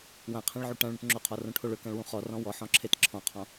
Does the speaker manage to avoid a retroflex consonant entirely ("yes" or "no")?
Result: no